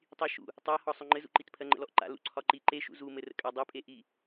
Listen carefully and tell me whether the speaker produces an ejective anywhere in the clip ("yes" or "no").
yes